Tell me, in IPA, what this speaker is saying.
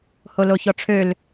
holoçɔʈ͡ʂʰøl

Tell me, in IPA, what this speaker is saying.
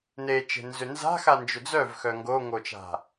net͡ʃe̤nzʏ nza̤xand͡ʒʏ d͡zœvxœ ŋɡoŋot͡ʃa̤

